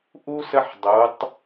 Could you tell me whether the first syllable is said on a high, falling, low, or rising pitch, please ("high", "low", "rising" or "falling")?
high